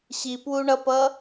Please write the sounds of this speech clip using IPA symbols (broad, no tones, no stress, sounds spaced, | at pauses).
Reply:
ɕ i p w u ɳ ʌ p ʌ